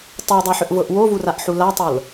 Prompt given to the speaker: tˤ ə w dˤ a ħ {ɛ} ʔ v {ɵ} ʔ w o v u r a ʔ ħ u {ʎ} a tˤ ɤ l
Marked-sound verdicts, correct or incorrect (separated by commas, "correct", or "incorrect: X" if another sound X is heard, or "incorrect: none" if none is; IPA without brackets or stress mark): incorrect: ʏ, incorrect: ɤ, incorrect: l